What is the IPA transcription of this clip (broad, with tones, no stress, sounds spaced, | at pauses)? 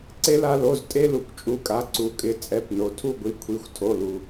ǀ e˦ l a˦˨ l o˩˧˩ z tʼ e˦ l u˩ kʷ t͡ʃʼ u˩˧˩ kʼ a˩˧˩ ǀ u˩˧ kʼ ɪ˩˧ t͡sʼ ɛ˩˧˩ p n o˩ tʰ u˦˨ ɡʷ i˩˧˩ kʷʰ i˩˧˩ xʷ tʰ o˩˧˩ l u˩